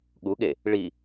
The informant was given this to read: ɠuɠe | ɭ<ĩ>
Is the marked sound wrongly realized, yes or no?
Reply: yes